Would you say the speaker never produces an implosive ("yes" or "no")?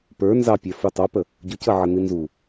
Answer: yes